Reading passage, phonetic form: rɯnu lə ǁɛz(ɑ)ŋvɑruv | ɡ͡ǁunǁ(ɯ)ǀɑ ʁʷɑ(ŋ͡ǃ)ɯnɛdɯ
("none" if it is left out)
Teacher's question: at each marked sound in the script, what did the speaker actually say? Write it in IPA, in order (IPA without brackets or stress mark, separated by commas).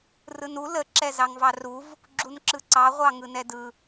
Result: ɑ, ɯ, ŋ